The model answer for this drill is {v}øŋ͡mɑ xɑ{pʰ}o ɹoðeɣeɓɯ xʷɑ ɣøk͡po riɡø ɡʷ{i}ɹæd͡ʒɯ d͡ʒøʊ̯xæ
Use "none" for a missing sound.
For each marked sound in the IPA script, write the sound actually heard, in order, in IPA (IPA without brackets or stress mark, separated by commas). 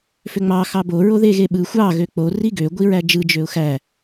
f, b, i